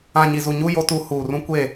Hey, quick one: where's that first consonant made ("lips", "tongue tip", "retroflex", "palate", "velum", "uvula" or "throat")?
palate